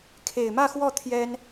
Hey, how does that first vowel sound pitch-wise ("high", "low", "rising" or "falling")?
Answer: low